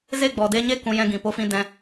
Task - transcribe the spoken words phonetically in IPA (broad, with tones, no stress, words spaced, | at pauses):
ze˦˨ɡ͡bɔ˨de˧ɲe˦ kũ˧jɛ̃˦ ɡĩ˨po˦fĩ˦ dɛ̃˦